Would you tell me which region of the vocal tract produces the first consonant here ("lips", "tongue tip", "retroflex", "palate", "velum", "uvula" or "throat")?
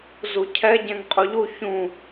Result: tongue tip